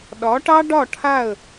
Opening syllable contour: rising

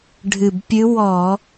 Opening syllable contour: low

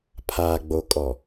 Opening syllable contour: low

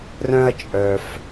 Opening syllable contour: high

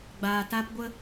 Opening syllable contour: low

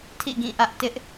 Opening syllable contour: falling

